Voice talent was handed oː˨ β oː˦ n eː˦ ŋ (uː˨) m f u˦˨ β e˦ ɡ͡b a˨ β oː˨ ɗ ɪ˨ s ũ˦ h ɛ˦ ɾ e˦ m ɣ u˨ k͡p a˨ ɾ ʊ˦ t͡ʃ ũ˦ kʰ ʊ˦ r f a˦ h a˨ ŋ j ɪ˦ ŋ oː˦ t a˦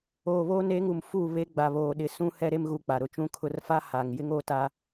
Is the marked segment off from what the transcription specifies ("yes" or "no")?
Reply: yes